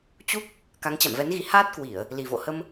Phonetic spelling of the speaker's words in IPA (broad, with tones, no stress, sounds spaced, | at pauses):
t͡ɕ u˦˥ k̚ | k a˨˦ ŋ t͡ɕ a̰˧˨ m v ɛ˨˦ n ɣ i˨˦ h aː˦˥ t̚ k w i˧˩˨ ə̯ | l i˨˩ v o̰˧˨ h ə˧ m